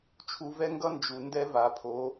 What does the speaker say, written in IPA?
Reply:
t͡ʃʰ u˧ v ɛ˦ ŋ ɡ ʌ˦ n d͡ʒ u˨ n d ɛ˦ v a˨ pʰ o˨˦

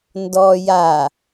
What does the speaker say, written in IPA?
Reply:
n d ɔ j a

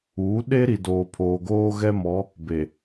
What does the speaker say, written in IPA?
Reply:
uː˨˦ ɗ e˦ ɾ i˨ d oː˨ pʰ oː˨ ɡ oː˦ ɣ ɛ˦ m ɔ˨˦ | b e˨

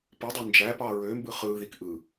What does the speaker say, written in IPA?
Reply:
p ɯ dˤ u n d͡ʒ æ p ɑ ɹ ø m b ɯ χ ɯ ð i k ʔ ɯ

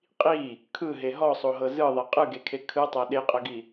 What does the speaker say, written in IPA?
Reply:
qʼ i | kʰ ɯ ɦ e ɦ ɔ sˤ o ɦ ɤ z ɯ ðˤ ɛ qʼ ɯ ɡ e kʰ e kʰ ɯ tˤ a ɗ e qʼ ɤ ɡ i

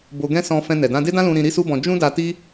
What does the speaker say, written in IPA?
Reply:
b o˧ ɡ ɛ̃˦ s ɔ̃˧ f ɛ̃˧ n ɛ˨ d ã˧ d e˦ d ã˦ l ũ˧ ɾ ĩ˧ ɾ i˦ s u˦ b ɔ̃˧ d͡ʒ ũ˦ d a˧ t i˦

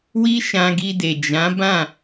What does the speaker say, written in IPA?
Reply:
w i˦ ʃ ã˧ ɡ i˧ d e˨ d͡ʒ ã˨˦ b ã˦˨

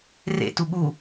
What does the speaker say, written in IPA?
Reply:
r ḛ t u ɠ u

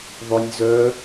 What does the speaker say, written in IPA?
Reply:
ðˤ ʏ nʲ z œ

